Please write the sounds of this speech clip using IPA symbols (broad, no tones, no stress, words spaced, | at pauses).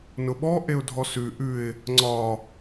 nʊɓɔ ʔeʊ̯dʱɔsʉ ʔʉɪ̯ | ŋ͡ǀɒ